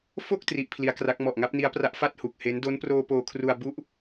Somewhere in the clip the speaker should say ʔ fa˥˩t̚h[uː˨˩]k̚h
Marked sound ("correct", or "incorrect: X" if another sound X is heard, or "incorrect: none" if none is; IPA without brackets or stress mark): incorrect: u˨˩